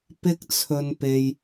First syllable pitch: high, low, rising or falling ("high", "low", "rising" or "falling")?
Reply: high